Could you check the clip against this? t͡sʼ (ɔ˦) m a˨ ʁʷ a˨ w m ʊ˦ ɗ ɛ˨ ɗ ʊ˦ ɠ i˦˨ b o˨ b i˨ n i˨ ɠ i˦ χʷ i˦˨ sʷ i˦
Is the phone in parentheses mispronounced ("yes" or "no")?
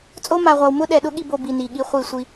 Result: yes